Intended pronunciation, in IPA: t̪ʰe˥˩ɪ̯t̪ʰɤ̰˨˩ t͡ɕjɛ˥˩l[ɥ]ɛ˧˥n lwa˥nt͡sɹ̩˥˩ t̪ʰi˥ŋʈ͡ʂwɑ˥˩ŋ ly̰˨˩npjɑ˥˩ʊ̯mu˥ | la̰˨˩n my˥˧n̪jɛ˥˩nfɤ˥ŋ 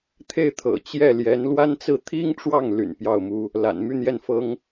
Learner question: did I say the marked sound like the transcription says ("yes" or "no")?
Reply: no